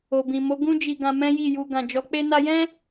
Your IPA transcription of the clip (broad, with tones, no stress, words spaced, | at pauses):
o˨bĩ˨mo˨˦ ɡũ˦d͡ʒi˧ɡã˧ mɛ̃˦ji˦˨ju˧ ɡã˨d͡ʒɔ˨˦k͡pe˦ na˧jɛ̃˦